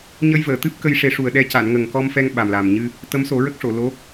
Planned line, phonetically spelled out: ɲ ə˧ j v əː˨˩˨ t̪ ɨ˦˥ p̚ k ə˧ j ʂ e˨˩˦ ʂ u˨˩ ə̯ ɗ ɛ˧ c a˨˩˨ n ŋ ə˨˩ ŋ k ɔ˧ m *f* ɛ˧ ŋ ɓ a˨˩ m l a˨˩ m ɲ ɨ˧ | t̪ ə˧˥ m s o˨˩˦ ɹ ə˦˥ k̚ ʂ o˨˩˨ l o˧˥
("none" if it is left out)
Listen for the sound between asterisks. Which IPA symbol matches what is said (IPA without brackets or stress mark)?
f